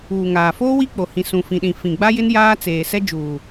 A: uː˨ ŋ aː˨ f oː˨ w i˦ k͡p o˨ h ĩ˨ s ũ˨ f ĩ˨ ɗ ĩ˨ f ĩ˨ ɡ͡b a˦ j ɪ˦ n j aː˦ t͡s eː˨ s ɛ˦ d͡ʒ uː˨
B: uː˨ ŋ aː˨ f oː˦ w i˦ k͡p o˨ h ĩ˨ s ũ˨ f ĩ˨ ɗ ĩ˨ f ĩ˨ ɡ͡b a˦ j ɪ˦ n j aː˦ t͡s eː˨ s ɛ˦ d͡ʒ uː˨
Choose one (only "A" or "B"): B